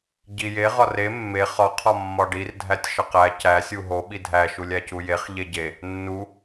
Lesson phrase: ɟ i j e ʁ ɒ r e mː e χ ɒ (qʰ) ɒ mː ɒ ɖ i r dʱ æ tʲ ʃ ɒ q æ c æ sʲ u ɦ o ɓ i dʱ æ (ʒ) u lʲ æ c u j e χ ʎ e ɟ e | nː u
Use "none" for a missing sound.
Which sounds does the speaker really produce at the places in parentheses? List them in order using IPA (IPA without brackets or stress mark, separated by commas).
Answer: qʰ, ʃ